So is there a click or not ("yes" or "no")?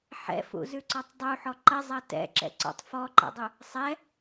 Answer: yes